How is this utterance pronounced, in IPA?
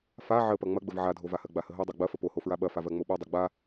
f a ʕ ə p ɐ ŋ͡m ɐ ɡ͡b ə v ʕ a dʱ o v a h ɜ ɡ͡b a h ə ɦ o dˤ a ɡ͡b ɐ f ə p o h o f ɹ a ɓ ɐ f a v ɜ ŋ͡m o ɓ o dˤ ɐ ɡ͡b a

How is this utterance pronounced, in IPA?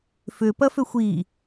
f ʏ p ɐ f ʏ xʷ i

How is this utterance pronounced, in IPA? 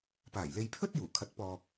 p aː˨˩ j l e˧ j pʰ ɵ˥ t̚ j uː˨˩ kʰ ɐ˨˥ t̚ p ɔː˨ k̚

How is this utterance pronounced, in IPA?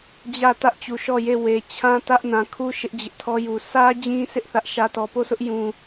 d͡ʑ ä˦˨ t ä˦ ʔ t͡ɕ u˨ ʃ ɔ˦˨ j e˦˨ w e˨ t͡ɕʰ ã˦ t ä˦ ʔ n ã˨ kʰ u˦ ʃ ɪ˦ ʔ d͡ʑ ɪ˦ ʔ tʰ ɔ˦ j u˨ s ä˦ d͡ʑ ĩ˦ s ɪ˦ ʔ θ ä˦ ʔ ʃ ä˦ t ɔ˨ p o˦˨ sʰ ʊ˦ ʔ j ũ˦

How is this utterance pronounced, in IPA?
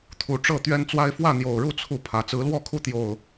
t̪ʰ u˨˩ ʈ͡ʂ ɤ˥˨ t̪ ɥ ɛ˦ n t͡s w a˦ ɪ̯ f w ä˥˨ n̪ j o˨˩ ʊ̯ ɻ u˥˨ t͡sʰ u˥˨ pʰ ä˨˦ t͡s ɹ̩˨˦ l w ɔ˥˨ kʰ u˦ t̪ j o˨˩ ʊ̯

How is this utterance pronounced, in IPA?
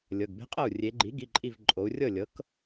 lʲ ɤ˩˧˩ ɡ b e̤˦˥ qʼ ɤ˥˩ u̯ rʲ e˩˧ ɡ͡ǃ i˩˥ ɡ i˩˧˩ ǃʼ i˧˩ v ǃʼ o˩˧ u̯ rʲ ɤ˥˩ lʲ ɤ˩˥ k

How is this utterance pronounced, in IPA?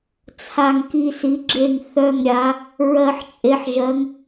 t͡sʰ a˨˩ ŋ k i˨˩ s i˩˧ ɡ͡ǁ e˨˩ ŋ θ œ˨˩ ŋ ɾʲ a˩˧ | ɹ ɜ˨˩ ħ t͡ʃʼ e˩˧ ħ ʒ ɜ˩˧ ŋ

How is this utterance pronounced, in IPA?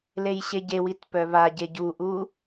l e j ɕ e ɟ e w i t p œ β a ɟ e ɟ u ʔ u

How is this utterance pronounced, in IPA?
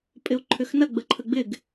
pʼ ɪ o̯ ǃʰ ʏ x n ɐ ɡ͡b ə ǃʰ ə ɡ͡b ɪ ɡ

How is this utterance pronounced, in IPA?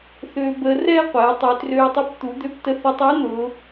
θ øː˧ b əː˧ r ɛː˥ qʷ ɛː˩˧ tˤ ø˩˧ t r øː˧ tˤ u˧˥ p t̪ u˩˧ d̪ ø˧ p t ə˧ θ ə˧ tˤ ɛ˧˥ n̪ ʊː˩˧

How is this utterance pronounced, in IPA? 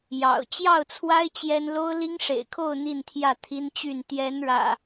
j ɑ̰˨˩ ʊ̯ t͡ɕ j ɑ˥˨ ʊ̯ t͡sʰ w a˦ ɪ̯ t͡ɕ j ɛ˦ n l o˦ ʊ̯ l i˦ ŋ ʂ ḛ˨˩ ɪ̯ kʰ o˥˨ ʊ̯ n̪ i˥˨ n t̪ʰ j ä˥˨ t̪ʰ i˦ n t͡ɕ y˥˨ n t̪ j ɛ˨˦ n ɻ ä̰˨˩

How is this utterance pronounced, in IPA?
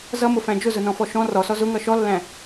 z ʌ m ʊ f æ̃ d͡ʒ ʊ z ʊ n ɔ̃ f ɔ ʃ ɔ̃ r ɔ s ɔ z ʊ ŋ ʌ ʃ ɔ lː æ̃

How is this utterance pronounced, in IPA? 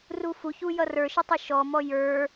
r u f u ç u j ʌ r ə˞ ʃ ɪ tˤ ɪ ʃ ɔ m ɔ j ə˞

